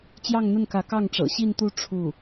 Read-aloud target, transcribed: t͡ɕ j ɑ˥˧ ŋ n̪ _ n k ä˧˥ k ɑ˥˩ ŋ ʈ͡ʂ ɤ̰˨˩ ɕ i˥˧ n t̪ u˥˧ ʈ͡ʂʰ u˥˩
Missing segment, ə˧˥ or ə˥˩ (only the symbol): ə˥˩